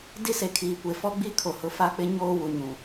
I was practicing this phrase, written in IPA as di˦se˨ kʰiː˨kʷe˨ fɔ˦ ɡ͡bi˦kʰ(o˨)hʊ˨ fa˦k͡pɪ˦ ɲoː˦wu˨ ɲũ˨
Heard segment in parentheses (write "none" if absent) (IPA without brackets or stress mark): o˨